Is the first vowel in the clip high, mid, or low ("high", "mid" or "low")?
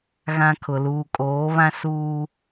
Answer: low